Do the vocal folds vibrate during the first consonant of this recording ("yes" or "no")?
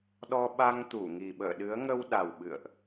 yes